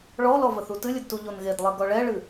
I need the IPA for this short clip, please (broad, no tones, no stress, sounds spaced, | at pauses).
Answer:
ɭ ɔ l ɔ v ə θ u t ɨ lʲ ɘ d t u ʎ o n ɣ e d lˠ e ɡ ɔ ɭ ɛ ɭ ɨ